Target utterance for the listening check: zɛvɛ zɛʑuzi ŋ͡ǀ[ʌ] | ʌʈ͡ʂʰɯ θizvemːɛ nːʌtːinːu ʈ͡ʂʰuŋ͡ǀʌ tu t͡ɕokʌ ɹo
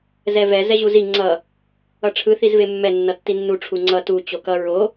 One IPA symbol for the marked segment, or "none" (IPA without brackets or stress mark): ʌ